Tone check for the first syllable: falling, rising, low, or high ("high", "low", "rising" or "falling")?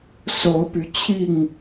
rising